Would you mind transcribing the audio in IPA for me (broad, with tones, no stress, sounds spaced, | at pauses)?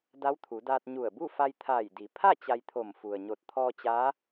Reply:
d a˧˥ w t̪ʰ u˩˧ d aː˧ t̚ ɲ u˧˩ ə̯ b u˥˨ f a˧ j t̪ʰ aː˧˩ j d i˩˧ pʰ a˥˨ t͡ɕ a˧ j t̪ʰ o˧˩ m f u˩ ə̯ ɲ o˧˩ t̚ t̪ʰ ɔː˧ t͡ɕ aː˧˥